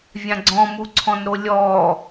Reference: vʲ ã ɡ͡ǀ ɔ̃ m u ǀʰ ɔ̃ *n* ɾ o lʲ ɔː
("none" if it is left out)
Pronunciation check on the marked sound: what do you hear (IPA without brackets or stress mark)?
n